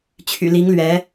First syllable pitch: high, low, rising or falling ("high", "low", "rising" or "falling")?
low